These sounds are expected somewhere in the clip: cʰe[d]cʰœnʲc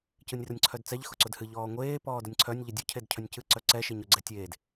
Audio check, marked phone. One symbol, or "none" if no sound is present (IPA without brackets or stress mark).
d